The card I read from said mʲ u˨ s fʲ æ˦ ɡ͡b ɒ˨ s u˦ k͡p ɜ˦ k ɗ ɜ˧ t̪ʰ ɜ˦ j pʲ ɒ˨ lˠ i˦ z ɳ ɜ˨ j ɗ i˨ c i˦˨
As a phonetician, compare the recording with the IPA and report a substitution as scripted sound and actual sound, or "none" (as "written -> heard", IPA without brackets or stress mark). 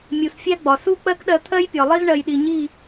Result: c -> ɲ